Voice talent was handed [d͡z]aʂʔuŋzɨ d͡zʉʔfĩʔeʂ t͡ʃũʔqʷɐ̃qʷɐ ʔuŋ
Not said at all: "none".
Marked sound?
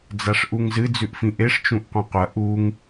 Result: d͡z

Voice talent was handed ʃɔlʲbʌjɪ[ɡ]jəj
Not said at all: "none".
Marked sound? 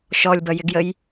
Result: ɡ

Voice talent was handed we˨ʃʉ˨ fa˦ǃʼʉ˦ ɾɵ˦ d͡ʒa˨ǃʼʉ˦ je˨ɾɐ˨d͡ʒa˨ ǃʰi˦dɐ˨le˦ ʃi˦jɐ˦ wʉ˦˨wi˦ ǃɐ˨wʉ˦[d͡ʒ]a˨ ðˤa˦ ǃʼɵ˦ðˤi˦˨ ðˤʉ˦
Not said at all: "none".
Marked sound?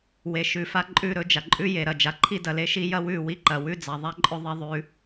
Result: d͡z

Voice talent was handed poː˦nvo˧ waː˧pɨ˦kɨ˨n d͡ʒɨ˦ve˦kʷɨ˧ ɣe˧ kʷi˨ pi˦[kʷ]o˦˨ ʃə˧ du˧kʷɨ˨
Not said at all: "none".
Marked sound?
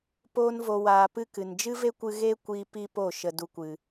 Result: p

